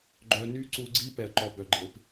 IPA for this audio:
ɡ͡ǃ œ˧ n y˦ ǀ u˧ ɡ͡ǀ i˦ p ɛ˧ ə̯ ǃ ɔ˧ b œ˨ ɡ͡ǃ e˨ p

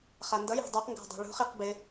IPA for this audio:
χ a n d ʌ j a̤ dˤ u q ŋ ɡ a̤ dˤ a̤ ɭ ṳ χ i q b ɪ

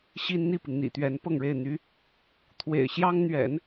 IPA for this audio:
ɕ i˥ n n̪ i˥˩ p i˩ ŋ n̪ ḭ˨˩ t̪ ɥ ɛ˧˥ n p ɤ˥˧ ŋ ɻ e˥˩ ɪ̯ n̪ y˥ | t̪ʰ w ḛ˨˩ ɪ̯ ɕ j ɑ˥ ŋ n̪ ɥ ɛ̰˨˩˦ n

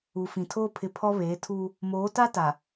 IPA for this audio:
u˨ f ĩ˨ tʰ oː˦ pʰ ɪ˨ pʰ ɔ˦ β eː˨˦ tʰ uː˦ | m oː˨˦ t a˦ t a˨

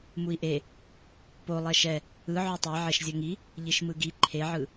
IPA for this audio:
m u i̯ ʔ e | p o lˠ ɛ ʃ ɛ | ɯ ʕ o tˤ e ʕ e ʃ zʲ ʌ ŋ i | ʎ i ʃ m ɯ ɡ i ǃʰ e ʕ ɯ

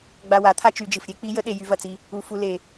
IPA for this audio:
ɡ͡b a˧ w a˩˧ t̪ʰ a˥ t͡ʃ y˩˧ d͡ʒ ɨ˩ f ɾʲ e˧˥ k͡p i˧˥ j ə˧˥ ɗ e˧ j y˧ v ɐ˩ t͡s i˧ | u˩˧ f u˩˧ l e˩

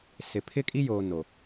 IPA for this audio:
s ɪ˨ pʰ ɪ˦ kʼ i˦ j oː˨ n o˨

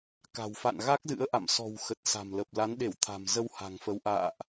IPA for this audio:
k a̤˨˩ w f a̰˧˨ n ɣ a˦˥ k̚ z ɨ̰˧˥ ə̯ ʔ a̰˧˨ m s ɔ̤˨˩ w x ə˨˩ t̚ s a̤˨˩ m l ə˨˩ p̚ l a˨˦ n ɗ e˧˩ w t̪ʰ a̤˨˩ m z ə˧ w h a̤˨˩ ŋ f ə˨˦ w ʔ a̰ː˧˨ ʔ

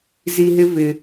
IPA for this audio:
z i˧ ɦ ɪ˦ v ɪ˧

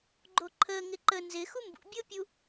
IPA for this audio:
ɡ͡ǃ o ǃʰ əː ŋ ɪ ǃ ə n z ɪ x u m b ṵ bʲ ʊː pʲ u

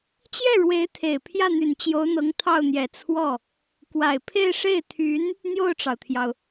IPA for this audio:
t͡ɕ j ɛ˥˩ ɻ w e˧˥ ɪ̯ t̪ʰ e˨˩ ɪ̯ pʰ j ä˥˩ n̪ y˨˩ n t͡ɕ j o˧˥ ʊ̯ n̪ ɤ˧˥ ŋ t̪ʰ ɑ˥˩ ʊ̯ n̪ j ɛ˨˩ t͡sʰ w ɔ˥˩ | k w a˨˩ ɪ̯ pʰ e˥˧ ɪ̯ ʂ e˥˩ ɪ̯ t̪ʰ y˧˥ n | n̪ j o˥˩ ʊ̯ ʈ͡ʂ ɑ˩ ʊ̯ t̪ʰ j ɑ˩ ʊ̯

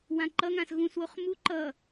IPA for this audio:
w ã ǃ ʌ ŋ ã s ɣ ũ s w o χ m u ǃ ʌ

